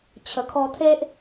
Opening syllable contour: low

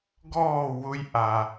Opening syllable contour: falling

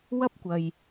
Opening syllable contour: high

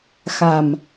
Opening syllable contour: low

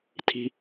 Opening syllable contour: low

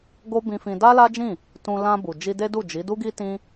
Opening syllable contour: high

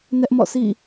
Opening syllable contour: high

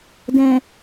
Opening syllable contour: low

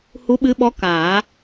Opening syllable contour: rising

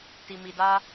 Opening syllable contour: low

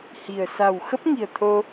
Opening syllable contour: low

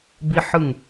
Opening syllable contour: high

